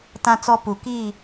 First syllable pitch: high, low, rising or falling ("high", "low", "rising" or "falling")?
high